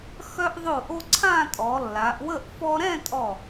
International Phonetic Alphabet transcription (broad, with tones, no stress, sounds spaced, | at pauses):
x œ˧ ʔ ðˤ o˧˩ ʔ o˧ ǀʰ ã˥˧ tʼ ɔ˩˧ lː a˩˧ ʔ w ə˥˧ ʔ f ɔ˧ ɾ ɛ̃˥˧ tʼ ɔ˧˩